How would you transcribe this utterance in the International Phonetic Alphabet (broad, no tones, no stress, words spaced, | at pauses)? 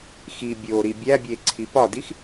xi bʲo ɾibʲæbʲe ǀʰipɒdix